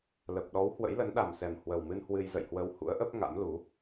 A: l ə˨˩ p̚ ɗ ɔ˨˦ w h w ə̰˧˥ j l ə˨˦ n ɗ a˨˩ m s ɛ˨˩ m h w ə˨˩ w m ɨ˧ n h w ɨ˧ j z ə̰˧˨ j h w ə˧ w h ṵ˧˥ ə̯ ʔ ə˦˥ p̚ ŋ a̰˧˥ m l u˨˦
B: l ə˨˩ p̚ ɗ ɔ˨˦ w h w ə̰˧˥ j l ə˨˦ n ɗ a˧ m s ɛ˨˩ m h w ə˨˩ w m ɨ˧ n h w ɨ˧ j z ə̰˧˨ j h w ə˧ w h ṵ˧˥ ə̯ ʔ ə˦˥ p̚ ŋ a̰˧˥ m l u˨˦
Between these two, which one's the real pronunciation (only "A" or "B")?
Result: A